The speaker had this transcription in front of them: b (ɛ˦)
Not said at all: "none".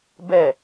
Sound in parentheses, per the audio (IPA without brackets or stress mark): ɛ˦˨